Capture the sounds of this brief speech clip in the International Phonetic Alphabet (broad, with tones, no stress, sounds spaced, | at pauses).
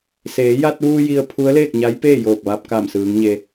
s eː˩˧ j a˧ t̚ ʋ uː˧ j i˧ ə̯ pʰ u˧˥ ə̯ l eː˥˨ k̚ ɲ a˧˥ j p eː˥˨ j oː˧˩ k̚ ʋ aː˧ p̚ k a˧˩ m s ɯː˩˧ ŋ ɲ e˧